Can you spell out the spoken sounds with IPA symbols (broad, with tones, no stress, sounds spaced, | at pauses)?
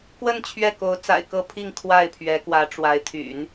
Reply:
k w ə˥˧ n t͡ɕʰ ɥ ɛ˥˩ k o˧˥ ʊ̯ t͡s a̰˨˩ ɪ̯ k ɤ˥˧ pʰ i˥˧ ŋ kʰ w a˥˩ ɪ̯ pʰ ɥ ɛ˧˥ k w ä˧˥ ʈ͡ʂ w a˧˥ ɪ̯ t̪ʰ y̰˨˩˦ n